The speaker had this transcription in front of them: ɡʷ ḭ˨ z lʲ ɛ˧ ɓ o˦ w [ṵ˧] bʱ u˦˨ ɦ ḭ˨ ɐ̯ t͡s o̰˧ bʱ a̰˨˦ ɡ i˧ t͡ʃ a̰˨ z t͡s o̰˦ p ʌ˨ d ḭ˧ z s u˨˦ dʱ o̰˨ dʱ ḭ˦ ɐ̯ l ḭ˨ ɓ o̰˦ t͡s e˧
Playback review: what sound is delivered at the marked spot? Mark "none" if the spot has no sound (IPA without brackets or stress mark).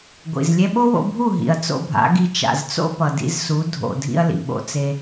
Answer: o̰˧